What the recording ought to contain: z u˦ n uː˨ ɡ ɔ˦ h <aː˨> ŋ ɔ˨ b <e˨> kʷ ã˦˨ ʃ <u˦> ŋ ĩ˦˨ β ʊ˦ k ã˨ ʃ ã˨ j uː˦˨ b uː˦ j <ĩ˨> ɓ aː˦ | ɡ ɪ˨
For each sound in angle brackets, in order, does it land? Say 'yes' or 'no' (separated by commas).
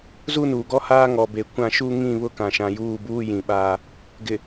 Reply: no, yes, yes, yes